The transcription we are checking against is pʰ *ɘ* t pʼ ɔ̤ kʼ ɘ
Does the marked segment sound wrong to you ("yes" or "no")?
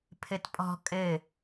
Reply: no